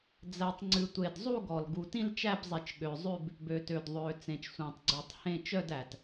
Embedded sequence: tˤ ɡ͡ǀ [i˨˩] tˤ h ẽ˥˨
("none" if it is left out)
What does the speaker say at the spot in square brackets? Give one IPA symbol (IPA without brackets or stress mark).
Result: y˨˩